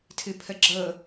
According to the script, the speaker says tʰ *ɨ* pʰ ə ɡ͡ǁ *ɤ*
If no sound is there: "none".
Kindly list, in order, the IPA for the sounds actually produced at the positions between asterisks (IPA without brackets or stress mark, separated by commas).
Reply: ɨ, ɤ